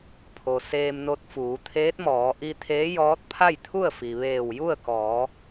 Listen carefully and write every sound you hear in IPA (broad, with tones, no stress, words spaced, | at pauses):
pʰo˩ seː˧mno˧t̚ fuː˩˧t̪ʰeː˧˥t̚mɔː˩˧ ʔi˧t̪ʰeː˧˥ jɔː˧˥t̚ pʰa˥˨jt̪ʰu˥˨ə̯fi˩ ʋeː˧˩wju˥˨ə̯kɔː˩˧